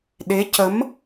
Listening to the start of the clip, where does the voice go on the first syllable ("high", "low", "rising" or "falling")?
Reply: rising